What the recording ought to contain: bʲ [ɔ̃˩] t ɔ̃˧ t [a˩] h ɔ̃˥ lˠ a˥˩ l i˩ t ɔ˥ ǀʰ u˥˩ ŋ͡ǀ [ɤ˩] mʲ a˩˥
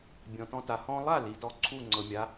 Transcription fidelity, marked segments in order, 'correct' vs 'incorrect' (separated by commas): correct, correct, correct